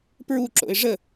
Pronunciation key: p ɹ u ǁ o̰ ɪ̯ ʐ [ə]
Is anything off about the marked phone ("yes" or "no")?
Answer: no